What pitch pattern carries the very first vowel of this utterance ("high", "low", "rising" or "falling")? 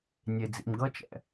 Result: low